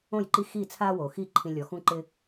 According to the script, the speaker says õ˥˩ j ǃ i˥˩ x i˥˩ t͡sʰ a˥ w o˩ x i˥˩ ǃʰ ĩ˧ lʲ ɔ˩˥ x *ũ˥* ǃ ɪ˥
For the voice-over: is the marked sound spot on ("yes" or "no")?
yes